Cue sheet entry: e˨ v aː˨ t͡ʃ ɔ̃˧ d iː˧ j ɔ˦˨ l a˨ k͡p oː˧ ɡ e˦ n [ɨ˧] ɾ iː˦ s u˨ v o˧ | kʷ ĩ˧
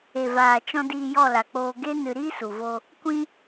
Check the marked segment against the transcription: correct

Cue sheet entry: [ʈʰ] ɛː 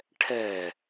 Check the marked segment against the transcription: correct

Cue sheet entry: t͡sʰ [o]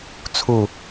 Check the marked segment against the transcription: incorrect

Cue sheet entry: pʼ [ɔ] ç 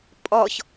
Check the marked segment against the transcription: correct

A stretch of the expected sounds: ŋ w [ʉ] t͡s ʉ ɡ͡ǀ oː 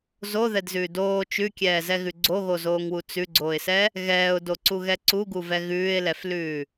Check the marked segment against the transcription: incorrect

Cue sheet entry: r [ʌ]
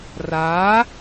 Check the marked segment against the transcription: incorrect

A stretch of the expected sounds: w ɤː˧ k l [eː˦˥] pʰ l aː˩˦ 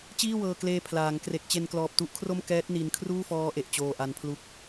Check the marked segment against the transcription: incorrect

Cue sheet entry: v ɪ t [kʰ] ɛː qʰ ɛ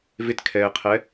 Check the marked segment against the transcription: correct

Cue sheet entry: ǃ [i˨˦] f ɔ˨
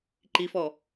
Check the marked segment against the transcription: correct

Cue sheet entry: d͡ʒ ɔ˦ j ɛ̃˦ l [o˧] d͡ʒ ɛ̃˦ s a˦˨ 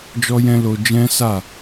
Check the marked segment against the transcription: correct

